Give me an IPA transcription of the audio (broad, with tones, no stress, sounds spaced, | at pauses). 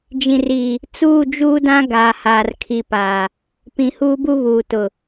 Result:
d͡ʒ ĩ˨ r iː˨ | t͡s uː˦˨ d͡ʒ uː˦ d ã˦ ɡ aː˨ h aː˨ r kʰ i˨ p aː˨ | p ĩ˨ h uː˦ b u˦ β uː˨ t ʊ˨